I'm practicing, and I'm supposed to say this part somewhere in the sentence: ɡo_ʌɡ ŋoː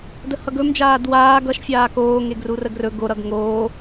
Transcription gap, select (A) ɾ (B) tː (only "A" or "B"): A